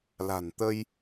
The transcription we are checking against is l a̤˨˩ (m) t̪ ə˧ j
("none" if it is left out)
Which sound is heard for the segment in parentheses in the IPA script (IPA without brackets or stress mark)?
n